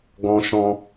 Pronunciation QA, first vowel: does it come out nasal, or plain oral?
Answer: nasal